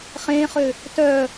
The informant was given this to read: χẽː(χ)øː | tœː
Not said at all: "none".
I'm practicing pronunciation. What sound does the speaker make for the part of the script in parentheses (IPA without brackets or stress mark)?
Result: χ